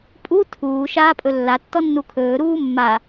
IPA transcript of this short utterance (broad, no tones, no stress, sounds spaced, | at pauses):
pʼ u tʰ uː ʃ aː pʼ ɵ lː a tː ɔ nː u kʰ ɵː ɾ uː mː a